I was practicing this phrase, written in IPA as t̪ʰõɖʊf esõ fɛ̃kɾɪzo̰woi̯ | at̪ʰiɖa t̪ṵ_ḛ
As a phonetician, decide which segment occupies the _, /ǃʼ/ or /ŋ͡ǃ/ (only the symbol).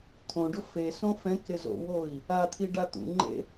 ŋ͡ǃ